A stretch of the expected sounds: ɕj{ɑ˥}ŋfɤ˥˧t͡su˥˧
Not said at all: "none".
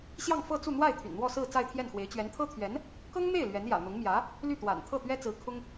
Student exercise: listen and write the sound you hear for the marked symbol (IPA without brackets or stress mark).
ɑ˥˧